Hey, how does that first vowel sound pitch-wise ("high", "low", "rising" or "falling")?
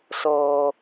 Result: low